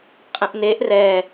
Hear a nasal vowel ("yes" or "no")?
yes